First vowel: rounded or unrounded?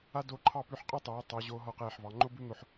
unrounded